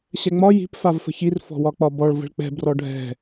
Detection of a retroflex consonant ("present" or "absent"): present